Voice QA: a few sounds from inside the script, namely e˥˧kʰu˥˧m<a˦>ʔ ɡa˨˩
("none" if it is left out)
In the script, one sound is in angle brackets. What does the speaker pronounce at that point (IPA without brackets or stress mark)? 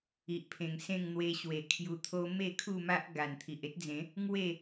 a˦